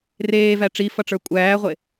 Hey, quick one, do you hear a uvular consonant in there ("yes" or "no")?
yes